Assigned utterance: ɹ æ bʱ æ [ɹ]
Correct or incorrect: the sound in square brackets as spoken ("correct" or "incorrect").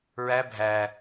incorrect